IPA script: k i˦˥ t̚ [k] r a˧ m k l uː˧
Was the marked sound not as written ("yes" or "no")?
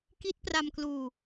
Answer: yes